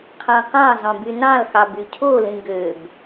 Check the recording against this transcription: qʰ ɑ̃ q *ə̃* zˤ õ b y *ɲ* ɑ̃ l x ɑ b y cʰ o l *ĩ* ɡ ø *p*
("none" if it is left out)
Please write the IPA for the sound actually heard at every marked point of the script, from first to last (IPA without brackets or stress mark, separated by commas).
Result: ɑ̃, n, ĩ, b